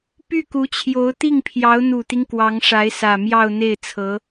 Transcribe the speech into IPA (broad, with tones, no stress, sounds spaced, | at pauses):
p y˥˩ k u˧˥ t͡ɕʰ j o˧˥ ʊ̯ t̪ i˥˩ ŋ pʰ j ɑ˧˥ ʊ̯ n̪ u˨˩ t̪ i˦ ŋ k w ɑ˧˥ ŋ ʂ a˧˥ ɪ̯ s ä˨˩ m j ɑ˥˧ ʊ̯ n̪ e˥˩ ɪ̯ t͡sʰ ɤ˧˥